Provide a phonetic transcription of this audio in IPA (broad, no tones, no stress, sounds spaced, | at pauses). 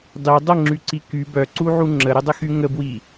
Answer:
dˤ i dˤ ə ŋ͡ǁ y ǀ i k y b œ ǀ u ʕ u ŋ͡ǁ ə ɾ ə dˤ ə x y ŋ ə b w i